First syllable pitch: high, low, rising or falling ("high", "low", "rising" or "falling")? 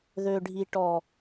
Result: low